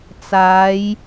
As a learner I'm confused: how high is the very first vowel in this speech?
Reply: low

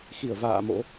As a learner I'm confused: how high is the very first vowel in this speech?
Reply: high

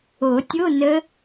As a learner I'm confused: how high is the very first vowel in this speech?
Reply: mid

